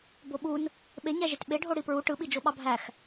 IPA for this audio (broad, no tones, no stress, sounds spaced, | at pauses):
b o ɓ u n | ɓ e ɲ æ ʒ e t ɓ e ɖʱ o ɽ i p ɹ u ʈ ɯ ɓ i d͡ʒ o ɓ ɑ bʱ æ x